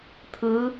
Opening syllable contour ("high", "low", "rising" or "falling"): rising